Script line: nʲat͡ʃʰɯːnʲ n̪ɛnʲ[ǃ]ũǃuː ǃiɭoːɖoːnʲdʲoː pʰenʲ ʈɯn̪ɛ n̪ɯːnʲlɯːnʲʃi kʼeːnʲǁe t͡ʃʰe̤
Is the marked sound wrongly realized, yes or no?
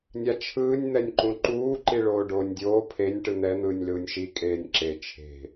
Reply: no